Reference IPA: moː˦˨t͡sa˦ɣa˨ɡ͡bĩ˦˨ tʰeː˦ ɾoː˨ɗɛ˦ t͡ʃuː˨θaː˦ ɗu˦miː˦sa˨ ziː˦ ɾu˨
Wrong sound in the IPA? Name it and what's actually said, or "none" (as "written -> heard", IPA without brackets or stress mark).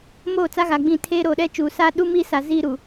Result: θ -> s